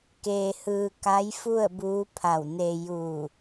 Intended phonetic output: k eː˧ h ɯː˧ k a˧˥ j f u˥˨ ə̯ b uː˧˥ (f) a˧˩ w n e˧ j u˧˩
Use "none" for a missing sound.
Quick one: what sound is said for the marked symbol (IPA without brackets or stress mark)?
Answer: pʰ